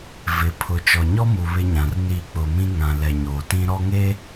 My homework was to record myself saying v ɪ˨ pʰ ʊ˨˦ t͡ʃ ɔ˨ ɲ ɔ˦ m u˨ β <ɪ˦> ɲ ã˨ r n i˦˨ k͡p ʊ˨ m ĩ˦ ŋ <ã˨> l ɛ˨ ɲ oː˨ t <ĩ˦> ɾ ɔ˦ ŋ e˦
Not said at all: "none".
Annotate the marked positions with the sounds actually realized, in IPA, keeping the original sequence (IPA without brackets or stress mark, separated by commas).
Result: ɪ˦, ã˨, ĩ˦